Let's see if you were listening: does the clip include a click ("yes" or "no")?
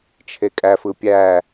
no